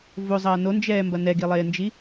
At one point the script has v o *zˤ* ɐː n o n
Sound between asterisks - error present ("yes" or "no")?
no